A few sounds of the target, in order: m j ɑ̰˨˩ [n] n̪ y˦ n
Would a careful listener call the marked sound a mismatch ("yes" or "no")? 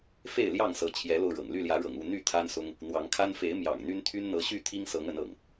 yes